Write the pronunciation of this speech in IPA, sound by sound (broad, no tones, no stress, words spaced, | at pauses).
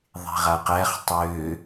ðˤe̤ʁaqæχ tˤø